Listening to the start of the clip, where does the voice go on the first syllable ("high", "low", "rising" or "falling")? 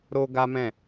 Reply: high